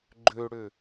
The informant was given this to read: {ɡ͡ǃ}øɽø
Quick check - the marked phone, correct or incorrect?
correct